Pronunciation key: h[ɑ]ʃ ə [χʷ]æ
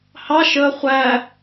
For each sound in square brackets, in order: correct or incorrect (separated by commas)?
correct, correct